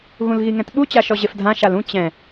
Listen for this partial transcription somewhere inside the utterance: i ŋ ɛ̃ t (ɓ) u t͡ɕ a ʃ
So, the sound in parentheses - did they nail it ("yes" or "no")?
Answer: yes